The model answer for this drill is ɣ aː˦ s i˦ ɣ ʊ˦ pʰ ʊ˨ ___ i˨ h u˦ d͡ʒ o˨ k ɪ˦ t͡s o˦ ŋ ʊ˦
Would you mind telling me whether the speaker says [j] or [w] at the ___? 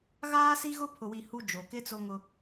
w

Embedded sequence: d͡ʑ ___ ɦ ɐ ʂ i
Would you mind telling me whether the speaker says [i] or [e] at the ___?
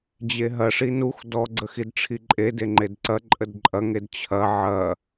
e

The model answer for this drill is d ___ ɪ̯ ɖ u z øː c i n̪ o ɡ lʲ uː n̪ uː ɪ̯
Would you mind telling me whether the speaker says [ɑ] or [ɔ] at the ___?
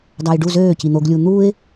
ɑ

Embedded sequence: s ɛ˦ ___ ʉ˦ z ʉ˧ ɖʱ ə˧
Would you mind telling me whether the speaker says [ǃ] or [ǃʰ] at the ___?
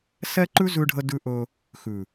ǃ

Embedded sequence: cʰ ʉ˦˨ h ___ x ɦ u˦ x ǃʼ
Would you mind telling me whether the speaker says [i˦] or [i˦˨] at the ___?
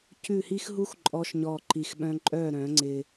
i˦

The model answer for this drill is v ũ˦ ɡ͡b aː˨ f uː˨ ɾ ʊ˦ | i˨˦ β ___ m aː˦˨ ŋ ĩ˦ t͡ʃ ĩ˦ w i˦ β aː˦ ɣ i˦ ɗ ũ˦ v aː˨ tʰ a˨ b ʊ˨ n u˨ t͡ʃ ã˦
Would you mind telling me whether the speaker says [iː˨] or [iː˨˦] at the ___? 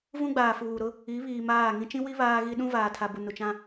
iː˨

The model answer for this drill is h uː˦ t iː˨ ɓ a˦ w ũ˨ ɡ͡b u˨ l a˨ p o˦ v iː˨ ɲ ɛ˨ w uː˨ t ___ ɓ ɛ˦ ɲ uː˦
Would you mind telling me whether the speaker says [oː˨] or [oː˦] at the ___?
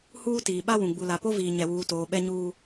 oː˨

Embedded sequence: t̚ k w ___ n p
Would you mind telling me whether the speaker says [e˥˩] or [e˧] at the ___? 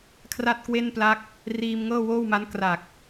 e˥˩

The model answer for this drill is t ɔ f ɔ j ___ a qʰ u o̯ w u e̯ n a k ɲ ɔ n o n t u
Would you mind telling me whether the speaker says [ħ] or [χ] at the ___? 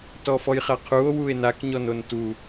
χ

